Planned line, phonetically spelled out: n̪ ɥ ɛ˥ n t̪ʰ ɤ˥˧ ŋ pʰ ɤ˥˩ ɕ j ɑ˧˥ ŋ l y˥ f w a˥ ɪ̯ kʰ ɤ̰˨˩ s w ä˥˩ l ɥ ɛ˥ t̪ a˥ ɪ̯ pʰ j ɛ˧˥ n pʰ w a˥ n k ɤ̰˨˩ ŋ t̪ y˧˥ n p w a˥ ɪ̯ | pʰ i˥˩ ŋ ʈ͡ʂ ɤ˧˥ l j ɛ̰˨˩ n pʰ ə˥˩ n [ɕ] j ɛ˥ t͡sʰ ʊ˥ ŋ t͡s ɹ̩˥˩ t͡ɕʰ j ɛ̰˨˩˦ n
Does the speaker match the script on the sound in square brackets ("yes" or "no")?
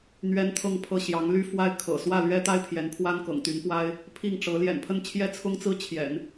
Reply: no